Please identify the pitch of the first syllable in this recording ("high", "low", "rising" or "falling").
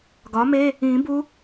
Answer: rising